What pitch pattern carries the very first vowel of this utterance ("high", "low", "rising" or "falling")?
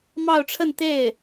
falling